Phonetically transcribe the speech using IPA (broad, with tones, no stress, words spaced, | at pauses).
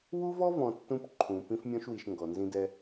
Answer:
wu˦vɔ˦vɔ̃˨ tːũ˦pǃʰũ˨ pĩ˦fmʲɔ̃˦ʃwi˨ʃ ŋɡɔ˨nzĩ˦dɛ˦